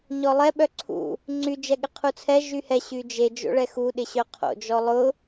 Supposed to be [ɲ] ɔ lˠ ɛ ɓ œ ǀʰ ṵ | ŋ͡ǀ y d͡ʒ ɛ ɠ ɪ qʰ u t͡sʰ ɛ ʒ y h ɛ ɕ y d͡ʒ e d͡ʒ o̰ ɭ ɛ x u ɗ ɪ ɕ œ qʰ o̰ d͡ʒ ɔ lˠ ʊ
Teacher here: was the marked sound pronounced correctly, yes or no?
yes